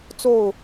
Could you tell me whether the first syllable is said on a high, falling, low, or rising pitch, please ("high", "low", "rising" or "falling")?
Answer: falling